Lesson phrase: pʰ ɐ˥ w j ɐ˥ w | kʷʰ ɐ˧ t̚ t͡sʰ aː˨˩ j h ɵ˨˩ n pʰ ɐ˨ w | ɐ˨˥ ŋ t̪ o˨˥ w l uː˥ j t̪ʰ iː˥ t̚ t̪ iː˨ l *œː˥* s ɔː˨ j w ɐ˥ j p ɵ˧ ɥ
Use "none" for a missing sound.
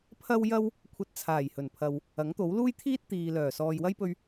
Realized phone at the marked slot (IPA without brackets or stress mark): œː˨˩